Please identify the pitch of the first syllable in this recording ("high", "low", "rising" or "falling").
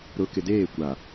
low